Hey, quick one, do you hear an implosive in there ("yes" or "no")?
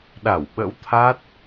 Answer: yes